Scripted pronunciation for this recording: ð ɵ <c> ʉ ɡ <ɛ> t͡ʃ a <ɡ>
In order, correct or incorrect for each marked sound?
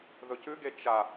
correct, incorrect, incorrect

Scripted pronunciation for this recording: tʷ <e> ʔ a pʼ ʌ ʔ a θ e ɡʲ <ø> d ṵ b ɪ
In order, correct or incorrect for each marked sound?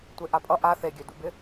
correct, correct

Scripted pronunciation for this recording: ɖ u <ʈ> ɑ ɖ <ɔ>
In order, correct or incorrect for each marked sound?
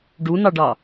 incorrect, incorrect

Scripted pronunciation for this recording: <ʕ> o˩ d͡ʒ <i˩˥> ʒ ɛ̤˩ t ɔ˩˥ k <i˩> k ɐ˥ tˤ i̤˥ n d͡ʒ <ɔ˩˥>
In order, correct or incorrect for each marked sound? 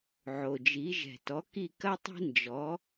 correct, correct, incorrect, correct

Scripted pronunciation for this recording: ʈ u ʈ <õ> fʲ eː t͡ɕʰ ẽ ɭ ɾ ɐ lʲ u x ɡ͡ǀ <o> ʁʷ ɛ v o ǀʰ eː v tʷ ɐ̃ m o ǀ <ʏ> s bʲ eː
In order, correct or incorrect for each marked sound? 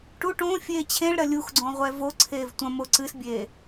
correct, incorrect, incorrect

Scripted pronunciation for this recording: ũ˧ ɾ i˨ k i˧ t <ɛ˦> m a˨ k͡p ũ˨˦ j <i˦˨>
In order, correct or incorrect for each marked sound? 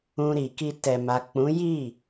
incorrect, correct

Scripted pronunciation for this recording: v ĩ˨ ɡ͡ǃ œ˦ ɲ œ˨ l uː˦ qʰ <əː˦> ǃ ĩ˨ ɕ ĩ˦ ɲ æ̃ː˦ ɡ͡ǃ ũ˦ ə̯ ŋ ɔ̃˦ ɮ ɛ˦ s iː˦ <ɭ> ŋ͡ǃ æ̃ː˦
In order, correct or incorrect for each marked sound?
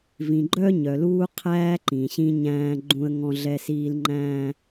incorrect, incorrect

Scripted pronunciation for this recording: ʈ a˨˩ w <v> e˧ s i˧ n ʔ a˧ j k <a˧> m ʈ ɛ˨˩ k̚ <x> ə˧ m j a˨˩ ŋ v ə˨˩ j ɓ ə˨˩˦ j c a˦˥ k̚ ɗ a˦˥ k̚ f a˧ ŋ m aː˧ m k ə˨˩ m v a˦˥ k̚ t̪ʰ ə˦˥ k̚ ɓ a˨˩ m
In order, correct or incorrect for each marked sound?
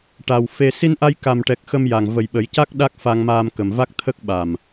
incorrect, incorrect, correct

